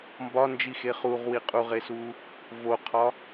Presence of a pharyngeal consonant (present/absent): absent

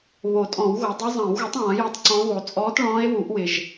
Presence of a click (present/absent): present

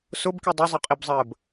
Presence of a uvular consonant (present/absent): present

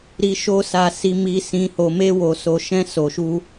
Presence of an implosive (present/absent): absent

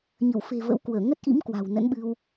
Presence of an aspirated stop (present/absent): absent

